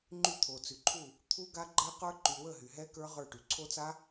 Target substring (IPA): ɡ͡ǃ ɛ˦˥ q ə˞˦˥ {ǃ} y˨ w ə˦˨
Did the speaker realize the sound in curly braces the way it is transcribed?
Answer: yes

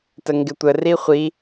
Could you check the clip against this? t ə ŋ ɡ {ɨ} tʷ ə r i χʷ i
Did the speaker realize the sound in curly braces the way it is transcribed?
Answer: no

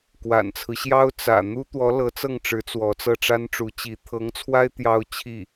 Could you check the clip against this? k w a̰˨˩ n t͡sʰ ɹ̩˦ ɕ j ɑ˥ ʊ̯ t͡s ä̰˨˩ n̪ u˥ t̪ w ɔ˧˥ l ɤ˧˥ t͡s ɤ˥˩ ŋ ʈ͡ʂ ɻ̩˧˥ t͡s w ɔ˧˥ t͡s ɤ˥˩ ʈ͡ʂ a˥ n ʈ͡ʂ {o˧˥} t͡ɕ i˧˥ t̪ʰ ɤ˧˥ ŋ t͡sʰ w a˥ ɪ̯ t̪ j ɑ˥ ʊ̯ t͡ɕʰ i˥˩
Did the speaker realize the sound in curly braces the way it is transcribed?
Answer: no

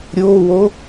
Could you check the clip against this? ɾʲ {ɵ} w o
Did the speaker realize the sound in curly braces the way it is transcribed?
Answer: no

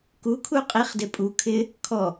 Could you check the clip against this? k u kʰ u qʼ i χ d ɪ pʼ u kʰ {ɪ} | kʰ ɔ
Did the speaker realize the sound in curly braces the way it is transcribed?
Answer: yes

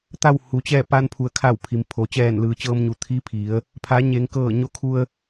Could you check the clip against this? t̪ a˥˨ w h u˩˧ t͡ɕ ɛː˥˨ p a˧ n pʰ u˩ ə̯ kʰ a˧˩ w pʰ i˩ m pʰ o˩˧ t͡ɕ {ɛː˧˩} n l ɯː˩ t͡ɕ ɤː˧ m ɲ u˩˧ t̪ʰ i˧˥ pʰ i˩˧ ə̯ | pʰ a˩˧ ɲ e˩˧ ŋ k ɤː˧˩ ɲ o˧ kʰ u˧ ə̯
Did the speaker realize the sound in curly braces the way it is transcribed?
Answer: yes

